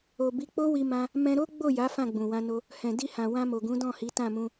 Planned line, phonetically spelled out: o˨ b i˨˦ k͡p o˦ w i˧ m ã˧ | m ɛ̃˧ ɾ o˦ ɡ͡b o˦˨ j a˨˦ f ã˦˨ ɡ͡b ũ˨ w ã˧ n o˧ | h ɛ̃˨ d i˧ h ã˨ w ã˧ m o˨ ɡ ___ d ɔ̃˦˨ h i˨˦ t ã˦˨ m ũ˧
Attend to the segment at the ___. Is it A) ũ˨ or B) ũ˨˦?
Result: B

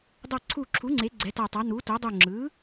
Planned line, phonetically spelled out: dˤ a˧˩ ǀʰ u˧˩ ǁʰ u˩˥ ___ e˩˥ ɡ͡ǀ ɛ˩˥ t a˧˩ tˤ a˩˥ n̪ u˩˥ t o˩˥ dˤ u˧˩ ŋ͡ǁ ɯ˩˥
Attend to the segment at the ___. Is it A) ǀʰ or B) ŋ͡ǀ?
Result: B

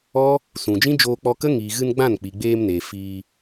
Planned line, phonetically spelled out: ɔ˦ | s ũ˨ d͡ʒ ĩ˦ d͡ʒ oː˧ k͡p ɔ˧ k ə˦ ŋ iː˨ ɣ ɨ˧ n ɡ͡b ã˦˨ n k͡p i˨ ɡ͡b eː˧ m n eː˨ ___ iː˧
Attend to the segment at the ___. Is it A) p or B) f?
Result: B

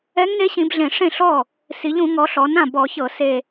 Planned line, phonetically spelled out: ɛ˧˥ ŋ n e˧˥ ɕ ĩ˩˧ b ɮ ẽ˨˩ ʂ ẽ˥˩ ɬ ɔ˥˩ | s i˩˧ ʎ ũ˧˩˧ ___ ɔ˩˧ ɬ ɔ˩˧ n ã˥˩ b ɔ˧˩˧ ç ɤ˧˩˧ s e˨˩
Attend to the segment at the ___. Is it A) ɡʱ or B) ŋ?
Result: B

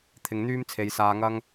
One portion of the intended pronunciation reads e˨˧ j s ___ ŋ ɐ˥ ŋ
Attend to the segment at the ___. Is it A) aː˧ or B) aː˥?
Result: A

